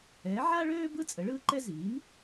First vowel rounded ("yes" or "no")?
no